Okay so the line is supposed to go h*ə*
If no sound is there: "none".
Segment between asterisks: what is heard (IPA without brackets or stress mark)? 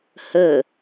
ə